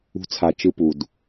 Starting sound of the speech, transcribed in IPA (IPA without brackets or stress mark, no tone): ṳ